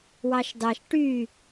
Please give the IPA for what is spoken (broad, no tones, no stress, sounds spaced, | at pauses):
w ɑ ʃ d ɑ ʃ ʈ y